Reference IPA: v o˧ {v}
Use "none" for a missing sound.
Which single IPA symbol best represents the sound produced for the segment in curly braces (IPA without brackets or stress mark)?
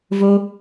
none